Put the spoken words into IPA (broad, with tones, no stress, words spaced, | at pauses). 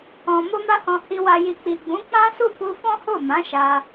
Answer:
ɔ̃˨ mo˧ma˧hɔ̃˨ hi˨wa˨ji˨ k͡pi˨ɡ͡bũ˨˦ k͡pã˦su˦˨ku˧ fɔ̃˦ho˦˨mã˨˦ ʃa˧